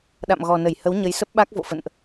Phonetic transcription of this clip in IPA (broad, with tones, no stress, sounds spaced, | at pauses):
ɗ a̰˧˨ m ɣ ɔ˨˩ n ə˧˩ j h ə˨˦ w ɲ ə˨˦ j s ə˦˥ p̚ ɓ a˦˥ k̚ v o̰˧˨ f ə̰˧˨ n ʔ